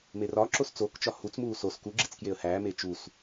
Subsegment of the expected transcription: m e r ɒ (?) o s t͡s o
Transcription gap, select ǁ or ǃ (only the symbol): ǁ